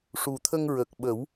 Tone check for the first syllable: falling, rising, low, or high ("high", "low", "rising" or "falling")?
low